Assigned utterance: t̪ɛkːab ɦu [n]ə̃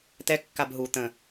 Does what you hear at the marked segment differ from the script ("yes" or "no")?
yes